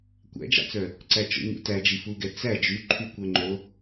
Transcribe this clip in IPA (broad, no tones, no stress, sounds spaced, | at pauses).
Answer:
kʷ æ̰ d͡ʒ ɑ̰ t͡s œ | ǀ æ t͡ʃ o̰ ɲ ṵ t æ d͡ʒ i f u ɡ ɛ t͡s æ d͡ʒ y ǃʰ y kʷ œ ŋ͡ǃ o